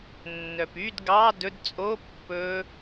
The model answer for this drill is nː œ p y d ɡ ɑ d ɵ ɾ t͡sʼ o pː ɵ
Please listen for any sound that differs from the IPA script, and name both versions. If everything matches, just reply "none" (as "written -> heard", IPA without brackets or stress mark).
ɾ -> d